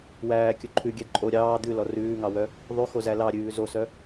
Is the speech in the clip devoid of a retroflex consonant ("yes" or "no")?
yes